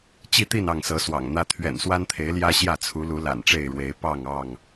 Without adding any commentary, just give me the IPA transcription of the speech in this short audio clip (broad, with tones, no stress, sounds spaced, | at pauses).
t͡ɕ i˥˨ t̪ i˥˨ n ɑ˥˨ ŋ s ɤ˨˦ s w ɑ̰˨˩ ŋ n̪ ä˦ t̪ʰ ɥ ɛ̰˨˩ n s w a˦ n t̪ʰ e˨˦ ɪ̯ l j ä˦ ɕ j ä˥˨ t͡sʰ u˨˦ l u˨˦ l a̰˨˩ n ʈ͡ʂ e˥˨ ɪ̯ ɻ w e˨˦ ɪ̯ p ɑ˥˨ ŋ ɑ˥˨ ŋ